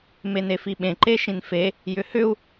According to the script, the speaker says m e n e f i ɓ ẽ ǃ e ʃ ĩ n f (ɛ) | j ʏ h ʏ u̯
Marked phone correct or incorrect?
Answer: incorrect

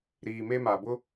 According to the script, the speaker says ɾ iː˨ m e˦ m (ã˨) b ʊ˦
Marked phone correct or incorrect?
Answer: incorrect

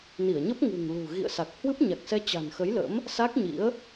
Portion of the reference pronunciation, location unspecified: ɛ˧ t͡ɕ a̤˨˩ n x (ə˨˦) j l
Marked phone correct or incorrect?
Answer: correct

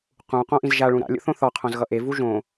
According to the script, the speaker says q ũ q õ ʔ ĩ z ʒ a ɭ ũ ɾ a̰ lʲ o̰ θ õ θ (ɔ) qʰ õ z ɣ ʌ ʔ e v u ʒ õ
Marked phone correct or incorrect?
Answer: correct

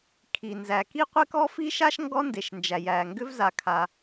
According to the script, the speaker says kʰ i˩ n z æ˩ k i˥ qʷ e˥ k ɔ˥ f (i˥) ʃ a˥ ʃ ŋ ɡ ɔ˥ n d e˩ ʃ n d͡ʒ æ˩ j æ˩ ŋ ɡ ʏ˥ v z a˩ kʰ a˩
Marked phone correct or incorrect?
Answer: correct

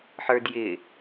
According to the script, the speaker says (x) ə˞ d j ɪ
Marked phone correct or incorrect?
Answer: incorrect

